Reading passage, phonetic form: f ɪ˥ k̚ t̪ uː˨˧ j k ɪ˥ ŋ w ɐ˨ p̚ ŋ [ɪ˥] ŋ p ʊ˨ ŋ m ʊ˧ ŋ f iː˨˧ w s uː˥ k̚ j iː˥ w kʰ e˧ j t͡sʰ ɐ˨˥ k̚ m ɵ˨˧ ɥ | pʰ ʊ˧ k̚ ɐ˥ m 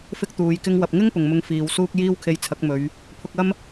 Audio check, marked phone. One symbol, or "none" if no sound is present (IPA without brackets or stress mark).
ɪ˥